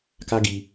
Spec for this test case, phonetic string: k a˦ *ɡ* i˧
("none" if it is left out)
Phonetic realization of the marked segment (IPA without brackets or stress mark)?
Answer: ɡ